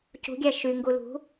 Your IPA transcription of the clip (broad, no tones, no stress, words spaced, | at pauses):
cṳɡʲæ ʃy ŋɡulṳ